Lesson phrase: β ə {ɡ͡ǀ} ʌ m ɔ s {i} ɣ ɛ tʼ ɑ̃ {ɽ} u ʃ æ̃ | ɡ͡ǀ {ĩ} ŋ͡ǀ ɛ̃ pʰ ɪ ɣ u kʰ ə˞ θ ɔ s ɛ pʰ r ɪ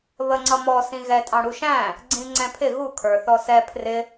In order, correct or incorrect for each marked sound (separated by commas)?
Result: incorrect, incorrect, correct, correct